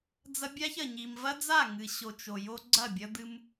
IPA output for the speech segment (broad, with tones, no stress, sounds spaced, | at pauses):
d͡z ɐ˦ bʲ a˦ ç ɐ˨ ɲ i˨ m v ɐ˦ d͡z a˦˨ ŋ ɨ˨ ɕ o˨ t͡ʃ o˨ j o˦ ɡ͡ǀ ɐ˦˨ bʲ ɐ˦ d̪ ɨ˦ m